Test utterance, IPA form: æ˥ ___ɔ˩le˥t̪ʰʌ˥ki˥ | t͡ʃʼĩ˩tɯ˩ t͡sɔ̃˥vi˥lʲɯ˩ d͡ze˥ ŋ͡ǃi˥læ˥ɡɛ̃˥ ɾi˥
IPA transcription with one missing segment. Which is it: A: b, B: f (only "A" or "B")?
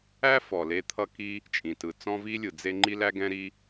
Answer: B